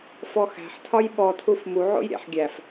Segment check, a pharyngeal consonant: present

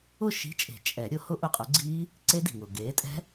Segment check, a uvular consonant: present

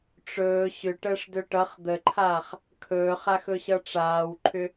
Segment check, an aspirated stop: present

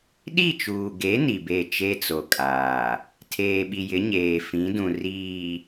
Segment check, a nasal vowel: present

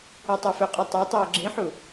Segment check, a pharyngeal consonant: present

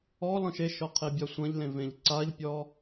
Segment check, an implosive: absent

